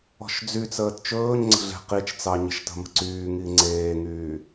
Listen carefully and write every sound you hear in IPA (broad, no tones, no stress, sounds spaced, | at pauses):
ɔ̤ ʃ d͡z y t͡s əː t t͡ʃ ɵː ɲ ŋ͡ǀ ə̤ ɮ e̤ q i t͡ʃ t͡s ɑ ɲ ə̤ ʃ t ə̤ m ə̤ ǀ yː ŋ i ŋ͡ǀ eː ŋ yː